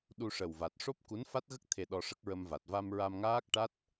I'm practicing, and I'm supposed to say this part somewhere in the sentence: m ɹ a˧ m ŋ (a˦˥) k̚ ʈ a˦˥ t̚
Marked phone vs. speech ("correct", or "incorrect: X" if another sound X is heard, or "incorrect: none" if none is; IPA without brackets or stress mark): incorrect: aː˦˥